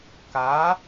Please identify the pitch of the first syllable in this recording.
rising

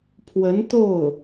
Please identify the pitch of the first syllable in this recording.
rising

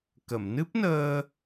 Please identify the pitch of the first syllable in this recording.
low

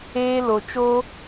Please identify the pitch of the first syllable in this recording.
high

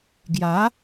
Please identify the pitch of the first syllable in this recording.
rising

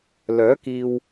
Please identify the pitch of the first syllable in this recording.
rising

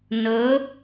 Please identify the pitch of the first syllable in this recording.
rising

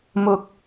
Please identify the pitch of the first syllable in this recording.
low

